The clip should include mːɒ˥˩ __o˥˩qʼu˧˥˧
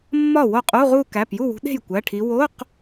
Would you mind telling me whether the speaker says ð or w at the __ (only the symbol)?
w